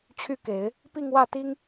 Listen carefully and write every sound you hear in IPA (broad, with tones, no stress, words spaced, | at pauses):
t͡ɕʰy˥˩ke˨˩˦ɪ̯ | pi˥˧ŋwä˥˩t̪i˥ŋ